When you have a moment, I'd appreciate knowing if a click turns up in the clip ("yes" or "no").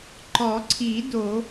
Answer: yes